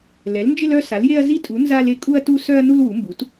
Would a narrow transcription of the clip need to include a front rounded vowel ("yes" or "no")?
yes